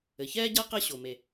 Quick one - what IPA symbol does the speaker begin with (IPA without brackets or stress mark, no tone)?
ɘ